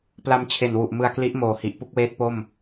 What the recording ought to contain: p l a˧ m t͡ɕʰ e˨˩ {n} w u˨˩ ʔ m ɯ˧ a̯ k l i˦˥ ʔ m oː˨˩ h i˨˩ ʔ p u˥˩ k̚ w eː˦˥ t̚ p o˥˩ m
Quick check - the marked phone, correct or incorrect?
correct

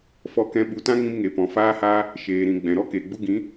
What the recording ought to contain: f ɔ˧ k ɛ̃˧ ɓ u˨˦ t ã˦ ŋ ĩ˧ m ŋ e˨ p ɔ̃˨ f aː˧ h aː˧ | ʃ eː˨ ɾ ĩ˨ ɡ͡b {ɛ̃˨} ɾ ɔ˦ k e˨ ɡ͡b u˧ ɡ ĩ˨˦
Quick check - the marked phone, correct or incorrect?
correct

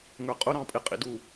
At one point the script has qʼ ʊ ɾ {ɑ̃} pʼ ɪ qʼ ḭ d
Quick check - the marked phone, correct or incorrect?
correct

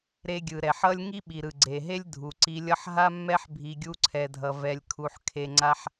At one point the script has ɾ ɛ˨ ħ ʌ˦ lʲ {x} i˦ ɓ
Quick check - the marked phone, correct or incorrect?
incorrect: ŋ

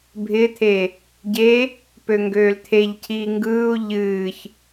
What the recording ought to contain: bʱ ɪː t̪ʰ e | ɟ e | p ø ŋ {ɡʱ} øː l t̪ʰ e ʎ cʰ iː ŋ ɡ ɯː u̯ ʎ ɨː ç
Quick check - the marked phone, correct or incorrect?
incorrect: ɡ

